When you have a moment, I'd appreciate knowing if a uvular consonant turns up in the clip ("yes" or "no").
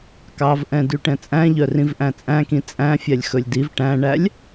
no